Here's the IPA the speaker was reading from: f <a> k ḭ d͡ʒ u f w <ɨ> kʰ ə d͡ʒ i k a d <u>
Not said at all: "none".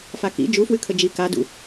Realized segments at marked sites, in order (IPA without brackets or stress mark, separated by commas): a, ɨ, ṵ